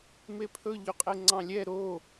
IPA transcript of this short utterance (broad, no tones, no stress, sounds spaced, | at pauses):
m e pʰ ɵ ʎ y qʼ e ŋ͡ǀ ɑ̃ lʲ ɛ ɾ o